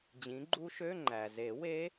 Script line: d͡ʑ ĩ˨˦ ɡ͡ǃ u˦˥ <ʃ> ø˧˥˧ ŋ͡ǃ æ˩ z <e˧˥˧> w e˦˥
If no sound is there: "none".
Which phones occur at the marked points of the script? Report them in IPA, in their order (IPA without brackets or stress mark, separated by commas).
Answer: ʃ, e˨˩˦